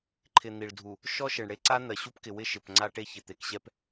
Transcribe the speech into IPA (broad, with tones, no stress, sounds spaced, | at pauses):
ǃʰ ɪ˨ n̪ i˨ ɭ dʱ u˨ | ʃ ɔ˦ ʃ e˨ ɳ ɽ e˦ ǀ a˦ n̪ ɜ˨ ɕ u˦ p k ɪ˨ w ɪ˦ ʃ ɪ˨ p ŋ͡ǀ a˦ ʈ e˦ ç ɪ˨ t̪ e˨ k ɕ ɛ˦ p